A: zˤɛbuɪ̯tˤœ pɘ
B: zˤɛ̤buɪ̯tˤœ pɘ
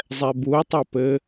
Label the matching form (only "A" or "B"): A